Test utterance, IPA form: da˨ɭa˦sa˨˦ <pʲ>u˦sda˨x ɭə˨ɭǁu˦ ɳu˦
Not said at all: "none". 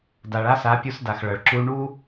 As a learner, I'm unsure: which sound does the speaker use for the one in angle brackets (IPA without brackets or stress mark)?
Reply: pʲ